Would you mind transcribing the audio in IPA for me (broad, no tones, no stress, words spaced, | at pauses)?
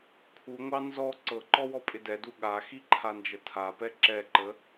kʰuŋʷɑ nzɔ ǀɤǃɔwɔpʼɪ dɛdu ɠaxiǃʰand͡ʒə tʰapɛ ǁɛǃə